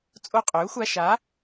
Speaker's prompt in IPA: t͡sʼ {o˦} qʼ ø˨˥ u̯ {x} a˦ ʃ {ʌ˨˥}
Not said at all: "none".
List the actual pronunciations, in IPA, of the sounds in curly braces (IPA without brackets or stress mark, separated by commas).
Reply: o˦, xʷ, a˨˥